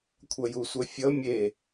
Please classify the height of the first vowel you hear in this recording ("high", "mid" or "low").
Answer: mid